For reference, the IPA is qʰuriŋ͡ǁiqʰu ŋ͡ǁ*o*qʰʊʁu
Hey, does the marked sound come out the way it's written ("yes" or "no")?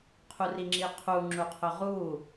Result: no